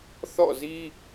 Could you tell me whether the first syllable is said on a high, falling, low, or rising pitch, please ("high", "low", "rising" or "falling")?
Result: falling